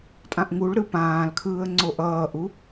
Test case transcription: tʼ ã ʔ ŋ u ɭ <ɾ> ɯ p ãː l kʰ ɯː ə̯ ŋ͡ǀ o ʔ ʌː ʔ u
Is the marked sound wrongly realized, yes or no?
no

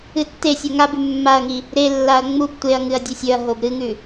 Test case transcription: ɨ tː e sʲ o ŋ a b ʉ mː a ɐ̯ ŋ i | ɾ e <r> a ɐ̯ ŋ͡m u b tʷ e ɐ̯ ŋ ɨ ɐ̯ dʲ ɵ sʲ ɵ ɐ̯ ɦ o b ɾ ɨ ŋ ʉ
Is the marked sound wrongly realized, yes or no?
yes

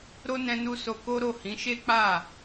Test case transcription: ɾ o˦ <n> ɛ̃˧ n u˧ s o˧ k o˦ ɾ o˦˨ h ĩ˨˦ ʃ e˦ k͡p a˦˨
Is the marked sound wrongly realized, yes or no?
no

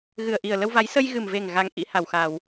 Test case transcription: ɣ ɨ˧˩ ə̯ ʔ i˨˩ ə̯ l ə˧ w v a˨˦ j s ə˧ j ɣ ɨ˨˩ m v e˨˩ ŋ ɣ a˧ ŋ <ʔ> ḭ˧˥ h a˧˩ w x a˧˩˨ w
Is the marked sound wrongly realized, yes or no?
no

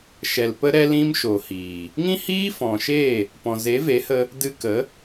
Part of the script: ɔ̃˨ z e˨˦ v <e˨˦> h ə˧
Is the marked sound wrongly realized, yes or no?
no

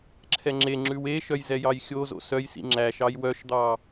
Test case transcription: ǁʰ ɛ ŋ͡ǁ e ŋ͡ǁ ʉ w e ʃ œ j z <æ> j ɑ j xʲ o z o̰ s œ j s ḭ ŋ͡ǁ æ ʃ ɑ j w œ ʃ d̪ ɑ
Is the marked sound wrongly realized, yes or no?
yes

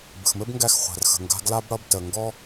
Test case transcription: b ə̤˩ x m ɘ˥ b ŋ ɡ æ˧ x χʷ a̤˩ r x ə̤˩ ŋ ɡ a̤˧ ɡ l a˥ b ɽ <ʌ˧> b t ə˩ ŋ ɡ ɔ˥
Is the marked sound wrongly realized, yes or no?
no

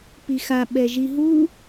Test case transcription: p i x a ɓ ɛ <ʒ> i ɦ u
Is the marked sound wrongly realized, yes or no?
no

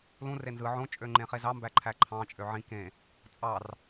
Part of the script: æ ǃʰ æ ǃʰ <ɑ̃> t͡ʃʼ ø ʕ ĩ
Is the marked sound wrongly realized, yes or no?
no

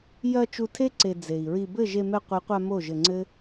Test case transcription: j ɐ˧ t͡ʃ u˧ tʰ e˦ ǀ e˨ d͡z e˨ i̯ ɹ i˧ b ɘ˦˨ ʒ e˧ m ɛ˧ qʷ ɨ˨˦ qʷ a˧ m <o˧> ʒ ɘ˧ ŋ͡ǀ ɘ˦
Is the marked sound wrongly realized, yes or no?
yes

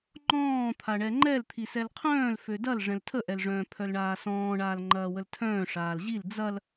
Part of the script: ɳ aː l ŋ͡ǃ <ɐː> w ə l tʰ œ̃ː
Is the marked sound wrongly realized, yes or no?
no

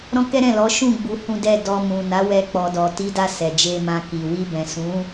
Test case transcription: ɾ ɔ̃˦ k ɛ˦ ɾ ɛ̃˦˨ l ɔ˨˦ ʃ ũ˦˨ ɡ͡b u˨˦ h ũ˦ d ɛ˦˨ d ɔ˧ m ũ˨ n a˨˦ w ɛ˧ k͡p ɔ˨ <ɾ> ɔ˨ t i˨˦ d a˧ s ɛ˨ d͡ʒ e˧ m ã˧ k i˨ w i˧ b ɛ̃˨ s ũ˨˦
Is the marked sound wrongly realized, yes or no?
yes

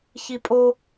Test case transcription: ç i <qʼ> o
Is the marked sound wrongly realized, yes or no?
yes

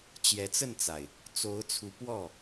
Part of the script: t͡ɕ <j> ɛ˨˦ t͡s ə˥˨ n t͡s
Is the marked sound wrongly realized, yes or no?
no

